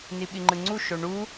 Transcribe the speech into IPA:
n i ɓ i ŋ͡ǃ ɯ ŋ͡ǀ u ʃ o ɳ u

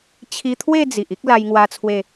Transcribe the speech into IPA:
t͡ɕʰ i˧ t̪ʰ w e˥˧ d͡z i˨ ʔ i˦ k̚ l a˧ j ŋ w a˧ t͡sʰ w e˧

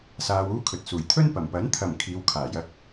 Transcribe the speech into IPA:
s aː˧ w uː˥ kʰ ɵ˨ t̚ s uː˨˩ j t̪ʰ ɵ˥ n p ɐ˨˩ m p ɐ˨˥ n t̪ʰ ɐ˨˩ m kʰ iː˨˧ w kʰ aː˨˩ j ɐ˧ k̚

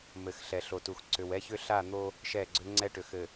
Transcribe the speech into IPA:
m ɘ˨ x ɬ ɛ˨ ɬ o˨ t u˨ x ǀ ʏ˨ w ɛ˦ ç ʏ˦ ɬ a˦˨ n̪ o˦ | ʃ ɛ˦˨ ɡ͡ǀ ʏ˦ ŋ͡ǀ ɛ˦ ʈ ʏ˨ x ɘ˨

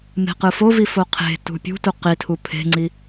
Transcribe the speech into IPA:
m e̤ q ɯ f o v i f o qʰ e̤ t ṳ pʲ ṳ t u q i tʰ u pʰ e̤ ŋ͡ǀ i

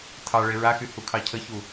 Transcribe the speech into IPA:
tʰ ɑ ɭ e ɹ a x y h u kʰ ɑ cʰ ə ç u

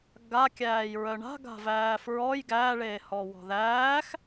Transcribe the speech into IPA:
ɡ a kʲ æː j ɹ œ ɳ a̤ ɡ a̤ v æː f ɹ ɔ j ɡ æː ɭ eː h ɔ w ɔ̤ ð æː x

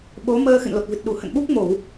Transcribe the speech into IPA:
ɓ o˨˦ m əː˧ x ɨ̰˧˨ n l o˨˩ t̚ v ɨ˨˩ t̚ ɗ u˧˩ h ə̰˧˨ n ɓ u˦˥ k̚ m o˧˩˨ w

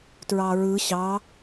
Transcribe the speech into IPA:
t ɹ ɑ ɹ ɯ ɕ ɑ

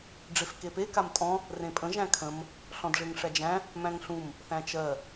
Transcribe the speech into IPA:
ɖ͡ʐ e f k e p e k a m tʼ ɔ̃ | r ẽ pʼ ə̃ ʒ æ̃ kʰ ə̃ m | ɬ ɔ̃ d ʐ e ŋ ʂ æ d͡ʒ æ̃ | m æ̃ ŋ ɬ ũ m | θ æ̃ t͡ʃ ɜ

